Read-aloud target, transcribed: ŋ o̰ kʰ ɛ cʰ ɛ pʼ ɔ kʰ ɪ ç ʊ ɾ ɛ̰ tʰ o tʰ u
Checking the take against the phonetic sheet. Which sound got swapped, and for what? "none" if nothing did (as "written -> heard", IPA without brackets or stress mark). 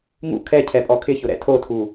o̰ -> ṵ